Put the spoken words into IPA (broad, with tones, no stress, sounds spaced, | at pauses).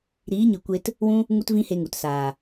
ɾ iː˨˦ ɲ ɨ˨ kʷ e˧ t | w ũ˦ | ŋ u˦ t v ĩ˦ h e˧ ŋ u˨ t s aː˨